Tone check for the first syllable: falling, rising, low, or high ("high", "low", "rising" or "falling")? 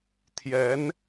rising